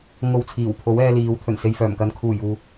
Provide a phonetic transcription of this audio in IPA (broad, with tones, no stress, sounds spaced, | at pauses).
ŋ o˧ w t͡sʰ iː˨˩ w pʰ o˨˥ w ɛː˧ l iː˨˧ w t̪ʰ ɵ˨˩ n s e˨ j f œː˨˩ m k ɐ˨ n kʰ uː˨˩ j uː˨